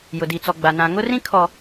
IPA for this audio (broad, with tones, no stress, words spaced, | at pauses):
jʊ˨di˨t͡sɔ˨ɡ͡ba˨ nã˨ŋʊ˦rĩ˦ kʰɔ˨